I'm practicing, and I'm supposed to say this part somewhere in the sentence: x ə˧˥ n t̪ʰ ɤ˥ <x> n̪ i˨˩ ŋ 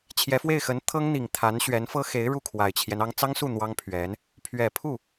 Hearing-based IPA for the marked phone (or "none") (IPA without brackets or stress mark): ŋ